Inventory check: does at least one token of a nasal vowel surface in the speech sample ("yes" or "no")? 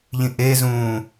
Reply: yes